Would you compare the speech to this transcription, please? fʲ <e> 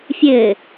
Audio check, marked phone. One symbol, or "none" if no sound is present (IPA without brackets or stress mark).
ɘ